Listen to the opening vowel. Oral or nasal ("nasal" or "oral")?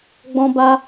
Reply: nasal